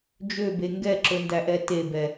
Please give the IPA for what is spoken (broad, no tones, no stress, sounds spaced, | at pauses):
d͡ʒ ø b e ŋ ɡ ɛ ǁ ɵ n d æ ʔ ɛ t e b ɛ